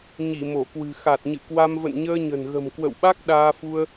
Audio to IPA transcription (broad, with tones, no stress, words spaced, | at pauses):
ɲi˧˩mo˧˩kwɨ̤˨˩ xa˨˩t̚ɲɨ̰˧˨kwa˧m və̰˧˨nɲəː˧ɲə̤˨˩n ɣə̤˨˩mkwə̰˧˨wɓa˦˥k̚ ɗaː˧fu˧ə̯